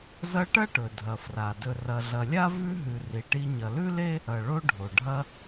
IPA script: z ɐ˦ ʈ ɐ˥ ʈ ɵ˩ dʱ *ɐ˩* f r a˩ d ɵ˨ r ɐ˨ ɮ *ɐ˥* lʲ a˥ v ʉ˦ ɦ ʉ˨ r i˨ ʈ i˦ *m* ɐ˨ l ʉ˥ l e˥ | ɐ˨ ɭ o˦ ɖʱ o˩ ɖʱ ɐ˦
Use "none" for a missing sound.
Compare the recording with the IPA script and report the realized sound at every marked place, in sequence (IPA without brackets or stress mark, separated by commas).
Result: ɐ˩, ɐ˨, ɲ